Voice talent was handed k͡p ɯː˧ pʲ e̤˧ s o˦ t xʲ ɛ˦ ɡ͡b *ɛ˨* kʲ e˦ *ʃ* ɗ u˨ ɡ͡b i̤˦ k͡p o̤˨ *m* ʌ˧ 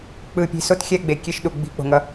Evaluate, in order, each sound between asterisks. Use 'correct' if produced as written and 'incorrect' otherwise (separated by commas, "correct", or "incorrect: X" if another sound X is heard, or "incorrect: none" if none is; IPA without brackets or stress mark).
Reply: incorrect: e˨, correct, incorrect: ŋ